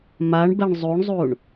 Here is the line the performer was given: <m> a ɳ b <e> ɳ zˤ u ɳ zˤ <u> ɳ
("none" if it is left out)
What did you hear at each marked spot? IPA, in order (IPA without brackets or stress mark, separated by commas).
m, ɛ, u